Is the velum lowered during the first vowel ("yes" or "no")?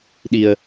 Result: no